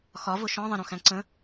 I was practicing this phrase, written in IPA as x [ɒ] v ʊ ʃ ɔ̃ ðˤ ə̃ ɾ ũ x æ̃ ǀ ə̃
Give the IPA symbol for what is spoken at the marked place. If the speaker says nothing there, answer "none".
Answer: ɒ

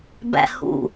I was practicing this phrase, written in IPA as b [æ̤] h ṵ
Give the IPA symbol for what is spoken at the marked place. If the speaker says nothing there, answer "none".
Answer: æ̰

